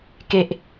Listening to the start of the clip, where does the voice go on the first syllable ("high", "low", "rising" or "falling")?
low